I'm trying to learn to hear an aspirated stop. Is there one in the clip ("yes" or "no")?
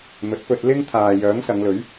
yes